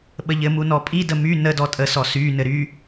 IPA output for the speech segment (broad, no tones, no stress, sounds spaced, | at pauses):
ɓ ə ʎ ɘ m u n ɔ pʼ i d ə m y n ə d ɔ tʼ ə s ɔ s y n ɘ ɾ y